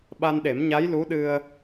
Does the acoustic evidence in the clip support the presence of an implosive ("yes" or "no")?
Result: yes